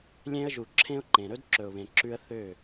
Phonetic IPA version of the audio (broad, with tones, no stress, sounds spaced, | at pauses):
lʲ ẽ˧ ə̯ ʒ u˨ ǁʰ ẽ˧ ʊ̯ ǃ ẽ˨ ɾ ɵ˦ d ǁ ɵ˨ ʊ̯ β ẽ˨ ǁ ʉ˧ ə̯ θ ø˦˨